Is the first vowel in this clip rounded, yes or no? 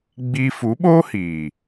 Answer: no